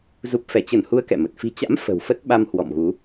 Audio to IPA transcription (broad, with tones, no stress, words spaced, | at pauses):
zu˨˩p̚fɛ˧˩t͡ɕə˧˩nhu˨˦ə̯ kɛ̰˧˨mə˨˩t̚ fi̤˨˩t͡ɕa̰˧˥m fə̤˨˩wfə˦˥t̚ ɓa˧m hwɔ̰˧˨mɣu˨˦